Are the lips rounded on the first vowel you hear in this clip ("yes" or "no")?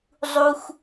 yes